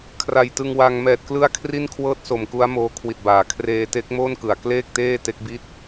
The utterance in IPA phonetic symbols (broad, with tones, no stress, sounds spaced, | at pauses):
kʰ r a˨˩ j t ɯ˧ ŋ w a˧ ŋ m ɛː˨˩ t̚ k l ɯ˥˩ a̯ kʰ r i˥˩ n kʰ w ɤː˥˩ t̚ s o˨˩ m k u˦˥ a̯ m oː˧ kʰ w i˨˩ t̚ b aː˩˦ kʰ r eː˧ t e˦˥ k̚ m oː˥˩ n k ɯ˨˩ a̯ k l eː˥˩ k̚ t eː˥˩ t e˦˥ k̚ b i˥˩ t̚